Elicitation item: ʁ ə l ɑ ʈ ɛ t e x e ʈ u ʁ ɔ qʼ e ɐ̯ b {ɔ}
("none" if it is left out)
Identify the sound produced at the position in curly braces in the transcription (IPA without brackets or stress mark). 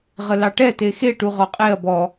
ɔ